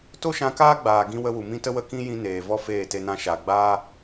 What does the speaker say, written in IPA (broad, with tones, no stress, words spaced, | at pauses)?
to˦ʃã˧kaː˦ɡ͡baː˨ ɡĩ˧wə˧ wu˨mĩ˦tə˦wə˦˨ kĩ˦ jĩ˧ neː˨ vɔ˦feː˦˨te˧nã˧ ʃa˨ɡ͡baː˦